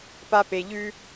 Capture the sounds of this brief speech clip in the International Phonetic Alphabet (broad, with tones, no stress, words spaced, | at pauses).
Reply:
pa˧pe˨ʎʉ˦